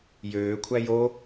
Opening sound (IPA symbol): j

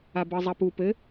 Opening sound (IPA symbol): a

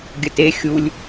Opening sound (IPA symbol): ɡʲ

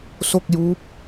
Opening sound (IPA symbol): s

